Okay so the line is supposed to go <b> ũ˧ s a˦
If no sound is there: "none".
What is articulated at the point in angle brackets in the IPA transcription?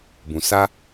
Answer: b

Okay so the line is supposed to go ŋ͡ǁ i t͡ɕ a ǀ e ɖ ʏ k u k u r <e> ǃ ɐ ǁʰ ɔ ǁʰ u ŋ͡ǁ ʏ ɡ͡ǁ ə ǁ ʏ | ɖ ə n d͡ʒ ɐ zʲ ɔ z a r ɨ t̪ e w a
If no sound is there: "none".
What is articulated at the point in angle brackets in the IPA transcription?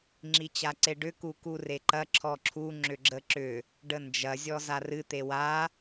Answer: e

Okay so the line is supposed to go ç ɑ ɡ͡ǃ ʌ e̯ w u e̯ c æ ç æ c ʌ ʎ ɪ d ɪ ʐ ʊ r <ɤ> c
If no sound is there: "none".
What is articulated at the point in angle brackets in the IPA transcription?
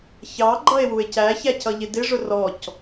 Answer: ɔ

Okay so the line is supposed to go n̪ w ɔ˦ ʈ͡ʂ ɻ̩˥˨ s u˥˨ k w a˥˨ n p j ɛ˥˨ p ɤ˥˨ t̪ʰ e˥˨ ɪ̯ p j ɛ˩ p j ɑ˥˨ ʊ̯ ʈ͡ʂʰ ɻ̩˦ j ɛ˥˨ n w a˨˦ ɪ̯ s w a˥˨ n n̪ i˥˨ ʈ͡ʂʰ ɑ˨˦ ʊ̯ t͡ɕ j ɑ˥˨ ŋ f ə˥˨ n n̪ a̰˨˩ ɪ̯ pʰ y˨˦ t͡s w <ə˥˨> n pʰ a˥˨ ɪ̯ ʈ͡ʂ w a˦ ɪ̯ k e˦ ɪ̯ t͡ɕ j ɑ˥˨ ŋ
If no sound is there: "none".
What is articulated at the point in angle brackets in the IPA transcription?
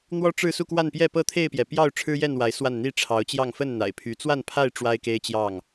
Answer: a˥˨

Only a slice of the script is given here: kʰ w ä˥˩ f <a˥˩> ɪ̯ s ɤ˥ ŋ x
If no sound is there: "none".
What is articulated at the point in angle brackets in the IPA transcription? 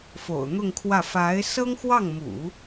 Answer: a˧˥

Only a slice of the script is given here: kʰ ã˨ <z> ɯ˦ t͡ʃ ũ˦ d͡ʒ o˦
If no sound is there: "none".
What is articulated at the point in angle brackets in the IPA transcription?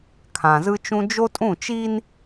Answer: z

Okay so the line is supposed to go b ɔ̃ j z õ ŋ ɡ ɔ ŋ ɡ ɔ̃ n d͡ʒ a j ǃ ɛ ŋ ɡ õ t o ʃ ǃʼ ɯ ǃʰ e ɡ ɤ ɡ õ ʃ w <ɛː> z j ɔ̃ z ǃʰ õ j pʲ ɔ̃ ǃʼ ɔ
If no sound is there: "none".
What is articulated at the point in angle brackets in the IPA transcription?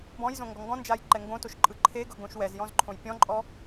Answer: ɛ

